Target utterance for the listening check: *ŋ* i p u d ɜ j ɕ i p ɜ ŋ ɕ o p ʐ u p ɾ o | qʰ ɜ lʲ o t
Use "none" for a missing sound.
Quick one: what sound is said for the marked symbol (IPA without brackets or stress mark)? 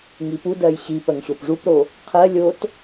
ŋ